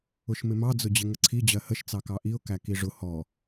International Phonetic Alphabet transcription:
ʊ ʃ m ɪ m ɑ d͡z ʊ d͡ʑ ɪ ŋ ə ǀʰ i d͡ʑ ɜ h ə ʃ t͡s ɑ k ɑ ʔ i ʊ̯ k æ k i ʐ ʊ h ɔ

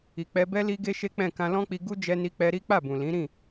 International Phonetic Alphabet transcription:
i˨ k͡p ɛ˧ b ɛ˦ l i˦ ɡ e˦ ʃ e˦ k͡p ɛ̃˦˨ k ã˧ l ɔ̃˦ k͡p i˧ ɡ u˦ d͡ʒ ɛ˧ n i˧ k͡p ɛ˧ ɾ i˦ k͡p a˦˨ b ũ˨ l ĩ˨˦ ɾ ĩ˦˨

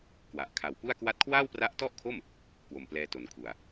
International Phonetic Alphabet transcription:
k w a˨˩ ʔ kʰ a˨˩ w p u˥˩ a̯ k w a˥˩ t̚ kʰ w aː˥˩ w p r a˦˥ ʔ t ɔ˥˩ ʔ kʰ o˥˩ m | k w o˨˩ m p l ɛː˧ t o˩˦ n kʰ u˨˩ a̯

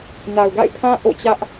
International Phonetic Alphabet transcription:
n a˨ ʊ̯ ɡ a̰˦˨ ɪ̯ pʰ ã˦ ʔ o̰˦˨ t͡ɕ ä˦ ʔ

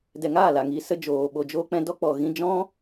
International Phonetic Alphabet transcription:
d ɛ˨ ŋ aː˦˨ l a˨ ŋ i˨ s ə˧ d͡ʒ oː˨ ɓ o˨ d͡ʒ o˧ k͡p ɛ̃˧ d ɔ˦ k͡p ɔ˨ ɣ ĩ˧ d͡ʒ ɔ̃˦

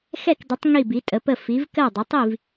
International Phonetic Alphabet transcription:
x ɛ˥˩ k d ə˩˥ tˤ ŋ i˥˩ b i˩˥ tʼ ə˩˥ p ə˥˩ f i˩˥ v k ɜ˥˩ dˤ ə˩˥ tˤ i˥˩ v

